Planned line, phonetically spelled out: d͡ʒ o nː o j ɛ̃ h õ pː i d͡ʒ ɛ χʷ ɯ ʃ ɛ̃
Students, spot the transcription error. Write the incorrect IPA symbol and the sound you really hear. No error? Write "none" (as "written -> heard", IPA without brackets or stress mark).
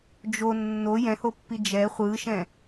õ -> o